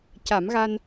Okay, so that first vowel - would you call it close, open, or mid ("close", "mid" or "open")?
open